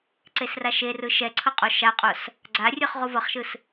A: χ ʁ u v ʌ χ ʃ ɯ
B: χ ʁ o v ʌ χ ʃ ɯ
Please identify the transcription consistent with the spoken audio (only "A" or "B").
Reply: A